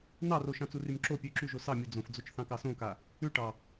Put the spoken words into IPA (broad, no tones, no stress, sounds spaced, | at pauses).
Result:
n ɑ r o ʃ ɑ̃ t͡s u r y m ǁ o pʲ ʉ ǁ y ʒ o s ɑ mʲ u d͡z õ f d͡z o t͡ʃ θ ɑ̃ k ɑ s õ k a | ʉ ʈ ɑ